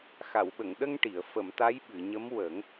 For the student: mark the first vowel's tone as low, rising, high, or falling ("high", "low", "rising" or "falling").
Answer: low